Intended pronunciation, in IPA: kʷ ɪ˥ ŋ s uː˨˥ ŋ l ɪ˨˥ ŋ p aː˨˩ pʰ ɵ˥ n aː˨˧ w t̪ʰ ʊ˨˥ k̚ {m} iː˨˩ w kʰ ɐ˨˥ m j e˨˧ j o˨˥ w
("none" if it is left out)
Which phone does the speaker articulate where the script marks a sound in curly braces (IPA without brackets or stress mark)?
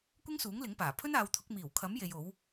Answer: m